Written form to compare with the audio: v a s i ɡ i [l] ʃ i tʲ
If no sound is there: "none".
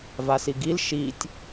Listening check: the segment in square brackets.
l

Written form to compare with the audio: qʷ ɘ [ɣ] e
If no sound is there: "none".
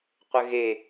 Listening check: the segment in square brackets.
ɣ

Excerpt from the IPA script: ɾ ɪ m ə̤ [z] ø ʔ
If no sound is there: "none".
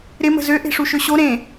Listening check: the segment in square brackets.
z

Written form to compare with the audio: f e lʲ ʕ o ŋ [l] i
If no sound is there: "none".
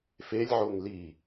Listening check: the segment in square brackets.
l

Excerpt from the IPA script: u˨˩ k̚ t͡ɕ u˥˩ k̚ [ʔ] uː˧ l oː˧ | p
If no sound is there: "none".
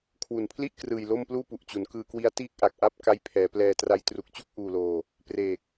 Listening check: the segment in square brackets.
ʔ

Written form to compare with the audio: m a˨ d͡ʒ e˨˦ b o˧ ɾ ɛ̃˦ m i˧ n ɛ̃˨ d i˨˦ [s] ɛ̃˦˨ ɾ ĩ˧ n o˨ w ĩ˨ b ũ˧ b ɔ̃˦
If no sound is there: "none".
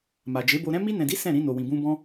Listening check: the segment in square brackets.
s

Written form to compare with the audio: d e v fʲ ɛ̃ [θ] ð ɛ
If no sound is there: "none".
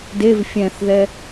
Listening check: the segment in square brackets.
θ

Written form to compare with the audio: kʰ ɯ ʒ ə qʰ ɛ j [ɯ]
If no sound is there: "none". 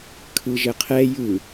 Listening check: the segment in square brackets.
ɯ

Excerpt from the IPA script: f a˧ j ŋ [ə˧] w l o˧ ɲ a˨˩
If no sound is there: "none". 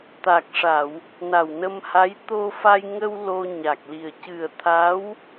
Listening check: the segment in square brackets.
ə˧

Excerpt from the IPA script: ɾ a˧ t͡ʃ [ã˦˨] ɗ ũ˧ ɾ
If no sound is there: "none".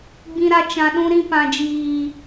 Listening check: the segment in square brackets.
ã˨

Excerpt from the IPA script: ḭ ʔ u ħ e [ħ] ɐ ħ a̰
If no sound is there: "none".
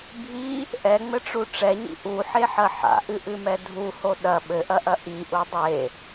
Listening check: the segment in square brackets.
ħ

